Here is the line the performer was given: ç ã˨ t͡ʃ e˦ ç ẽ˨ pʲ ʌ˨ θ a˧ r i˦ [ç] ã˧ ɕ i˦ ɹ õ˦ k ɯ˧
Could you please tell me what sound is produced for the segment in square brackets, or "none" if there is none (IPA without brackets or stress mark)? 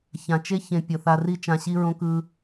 t͡ʃ